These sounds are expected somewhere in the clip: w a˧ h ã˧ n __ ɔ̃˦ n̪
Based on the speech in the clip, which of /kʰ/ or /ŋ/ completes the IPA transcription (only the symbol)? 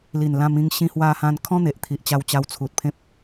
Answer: kʰ